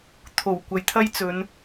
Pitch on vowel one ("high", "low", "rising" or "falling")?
low